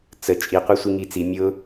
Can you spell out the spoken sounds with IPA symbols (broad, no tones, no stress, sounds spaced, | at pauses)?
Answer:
t͡s ə t͡ʃʼ i qʷ e sʷ i ŋ i t͡s i mʲ ʊ